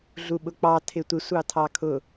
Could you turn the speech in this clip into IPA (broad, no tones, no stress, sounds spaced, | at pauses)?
ɮ u ɓ ʊ k͡p ɑ tʰ ɪ tʷ ɪ sʷ ɑ tʰ ɑ kʰ ʊ